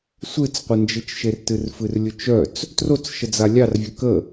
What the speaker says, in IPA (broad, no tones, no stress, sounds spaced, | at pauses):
sʷ ɨ t͡s qʷ ə n d͡ʒ ɨ t͡ʃ ʃ e r t ɨ r f ɨ r lʲ u t͡ʃ œ t͡s | t r o t͡s ʃ ə d͡z a lʲ ɑ r vʲ ə k ə